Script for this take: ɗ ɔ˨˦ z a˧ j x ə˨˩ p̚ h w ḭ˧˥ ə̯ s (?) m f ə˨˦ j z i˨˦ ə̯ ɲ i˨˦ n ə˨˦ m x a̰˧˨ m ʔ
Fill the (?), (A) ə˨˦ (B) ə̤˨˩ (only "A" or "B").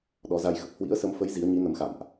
A